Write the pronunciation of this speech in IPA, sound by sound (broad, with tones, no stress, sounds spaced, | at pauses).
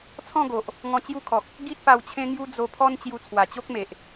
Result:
t͡sʰ ɔ̃˥˧ ɡ o˨ ʔ | ŋ ɔ̃˧ t͡ɕ j u˦ kʰ ɔ˨ k̚ | ɡ i˦ t̚ p a˧ w t͡ɕʰ ẽ˦ ŋ j u˦ d͡z o˧ pʰ ɔ˦ n t͡ɕ j u˧ t͡sʰ w a˨˩ t͡ɕ o˦ k̚ m e˨ ʔ